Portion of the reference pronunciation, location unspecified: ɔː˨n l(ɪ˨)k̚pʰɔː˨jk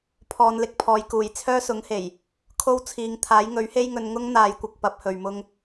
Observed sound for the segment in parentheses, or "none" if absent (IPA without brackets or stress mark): ɪ˧